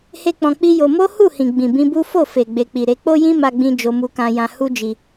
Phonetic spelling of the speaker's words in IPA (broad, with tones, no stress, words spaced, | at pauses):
he˦k͡pɔ̃˧ k͡pi˦jo˧ mo˦hu˦˨ hĩ˨ɡ͡bĩ˨ bĩ˧ bu˦ fo˦˨fe˨ ɡ͡be˨k͡pi˨ɾe˧ k͡po˦jĩ˦ma˧ɡ͡bĩ˧ d͡ʒo˧mu˧kã˧jã˧ hu˦d͡ʒi˧